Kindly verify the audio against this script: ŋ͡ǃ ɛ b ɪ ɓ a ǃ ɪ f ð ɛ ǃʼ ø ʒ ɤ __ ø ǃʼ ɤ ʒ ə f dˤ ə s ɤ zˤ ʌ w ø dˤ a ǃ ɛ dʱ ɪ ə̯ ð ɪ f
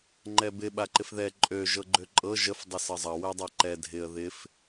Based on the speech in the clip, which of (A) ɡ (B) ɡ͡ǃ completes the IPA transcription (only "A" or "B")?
B